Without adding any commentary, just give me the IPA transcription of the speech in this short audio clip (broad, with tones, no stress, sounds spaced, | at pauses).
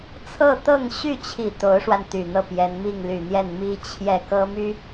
t͡sʰ ɤ˥˧ t̪ ɤ˥˧ ŋ ɕ y˥˩ t͡ɕʰ i˨˩ t̪ o˧˥ ʊ̯ ʂ w a˧ n t̪ y˨˩ n̪ ɤ˥˩ p j ɛ˧˥ n m i˥˩ ŋ l y˨˩ n̪ j ɛ˥˩ n m i˥ t͡ɕʰ j ɛ˥˩ k ɤ˥ m y˥